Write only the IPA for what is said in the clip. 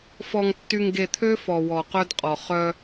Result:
fɔ˨ŋtːy˨ŋɡe˨t̪ʰø˦ fɔ˨ wɔ˨qœ˦dqʼɔ˨ χœ˦

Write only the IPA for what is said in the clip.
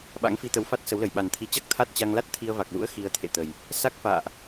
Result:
ɓa̰˧˥ŋfi˧t̪ə˨˦wfa˦˥t̚ sə˨˦wlə˧˩j ɓa˨˩nt̪ʰi˨˦t͡ɕa˦˥k̚ t̪ʰa˦˥t̚t͡ɕa˧ŋ la˦˥t̚ t̪ʰi˧ə̯ va˨˩k̚lṵ˧˥ə̯ xi˧ə̯t̪ʰḛ˧˨t̪ə˨˩j | sa˦˥k̚fa̰ː˧˨ʔ

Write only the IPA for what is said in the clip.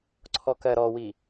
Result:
ǀʰɔkɜɾɔwi

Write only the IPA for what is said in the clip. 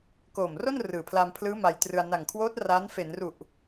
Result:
koː˨˩mro˥˩n rɯː˨˩pʰla˧mpʰlɯː˦˥ ma˧jtrɯ˧a̯ na˨˩ŋkʰwoː˦˥t̚ ra˦˥n fe˩˦nru˨˩ʔ

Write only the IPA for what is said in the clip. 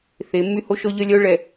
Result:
θe˨˦mːy˦ ho˦ʃɔ˦ʎœ˦ lʲœ˦ ɭɛ˨

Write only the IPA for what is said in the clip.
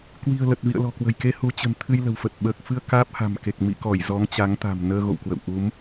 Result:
kwi̤˨˩ə̯lə˨˩t̚vḭ˧˨ə̯ lɔ̤˨˩kwə̤˨˩jke˧ hu˨˦t͡ɕə̤˨˩n t̪ʰɨ˧jlə̤˨˩wfə˨˩t̚ ɓəː˨˩k̚fɨ˧ə̯ kaː˦˥p̚ha̤˨˩mke˨˩k̚ mḭ˧˨kɔ˧˩j zɔ˨˦ŋt͡ɕa˨˦ŋt̪a̤˨˩m nəː˧ɣo̰˧˨wkwə̰˧˨w ʔu˨˦m

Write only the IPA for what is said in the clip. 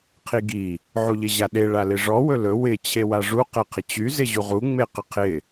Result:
qʰiɡi | ʕuʎɪʑaɗe ɭalɪʐɔ wɵlɵ wɪ t͡ɕʰewaʐu qɛqʰɪt͡ɕy zɪʑuʁu ŋ͡meqɪqʰɪ

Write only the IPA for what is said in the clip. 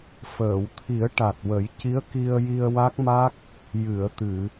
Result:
fəː˨˩˨wt̪ʰi˨˩˦ə̯ ʈa˨˩t̚wə˨˩˦j ci˧˥ə̯ki˧ə̯ji˧ə̯ wa˦˥k̚ma˦˥k̚ | jɨ˨˩˨ə̯ t̪ɨ˨˩˨

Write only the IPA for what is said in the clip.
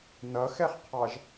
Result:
nʌxɛχqʰɑʒ

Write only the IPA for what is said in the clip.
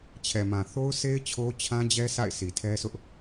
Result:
t͡ɕʰɛ˨mã˨θo˦ʊ̯se˦ɪ̯ t͡ɕʰo˦t͡ɕʰã˦d͡ʑɛ˦ sʰa̰˦˨ɪ̯si˨tʰɛ˦sʰʊ˦ʔ

